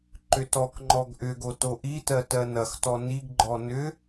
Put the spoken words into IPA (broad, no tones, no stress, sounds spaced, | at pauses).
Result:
ǃ ʏ t ɔ k ŋ͡ǃ ɔ ɡ ʔ ʏ ɡ o t o ʔ i t ɜ t ɜ n ɐ x t ɔ n i ɡ ɡ͡ǃ ɔ n ʏ